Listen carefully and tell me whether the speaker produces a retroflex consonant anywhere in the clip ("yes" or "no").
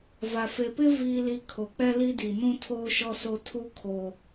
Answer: no